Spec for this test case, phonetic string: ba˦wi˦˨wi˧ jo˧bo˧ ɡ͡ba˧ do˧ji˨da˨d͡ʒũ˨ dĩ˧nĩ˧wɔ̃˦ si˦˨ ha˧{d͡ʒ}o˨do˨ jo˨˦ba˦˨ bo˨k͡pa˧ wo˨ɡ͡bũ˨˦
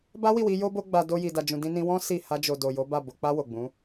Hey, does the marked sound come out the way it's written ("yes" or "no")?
yes